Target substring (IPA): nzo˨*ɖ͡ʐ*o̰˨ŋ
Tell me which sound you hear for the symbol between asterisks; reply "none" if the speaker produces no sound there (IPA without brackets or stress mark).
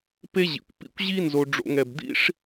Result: ɖ͡ʐ